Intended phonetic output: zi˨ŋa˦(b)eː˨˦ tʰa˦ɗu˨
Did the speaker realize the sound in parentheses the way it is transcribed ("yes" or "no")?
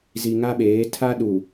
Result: no